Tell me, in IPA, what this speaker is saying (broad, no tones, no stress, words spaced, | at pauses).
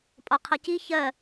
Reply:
pʼɒqʰʌ ci çɜ